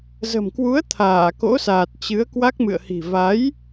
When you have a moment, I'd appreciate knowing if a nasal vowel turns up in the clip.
no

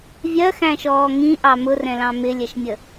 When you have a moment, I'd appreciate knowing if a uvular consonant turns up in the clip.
no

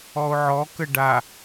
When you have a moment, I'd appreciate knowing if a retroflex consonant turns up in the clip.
yes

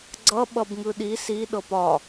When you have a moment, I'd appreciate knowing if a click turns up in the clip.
yes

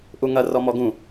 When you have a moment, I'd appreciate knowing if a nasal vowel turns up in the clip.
yes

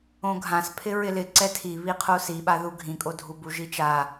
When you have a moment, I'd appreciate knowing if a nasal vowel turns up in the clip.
yes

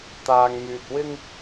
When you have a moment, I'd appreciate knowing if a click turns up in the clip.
no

